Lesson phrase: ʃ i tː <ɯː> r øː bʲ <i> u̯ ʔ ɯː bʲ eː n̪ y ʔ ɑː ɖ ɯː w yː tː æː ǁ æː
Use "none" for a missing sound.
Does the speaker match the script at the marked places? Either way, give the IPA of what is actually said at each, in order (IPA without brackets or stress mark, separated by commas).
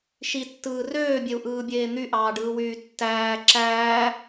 ɯː, e